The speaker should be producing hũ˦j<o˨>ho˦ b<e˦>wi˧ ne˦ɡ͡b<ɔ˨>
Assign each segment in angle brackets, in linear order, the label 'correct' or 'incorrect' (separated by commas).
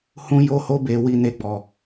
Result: incorrect, incorrect, incorrect